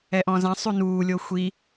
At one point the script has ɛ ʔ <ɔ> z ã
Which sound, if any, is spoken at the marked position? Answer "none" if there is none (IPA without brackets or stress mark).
ɔ̃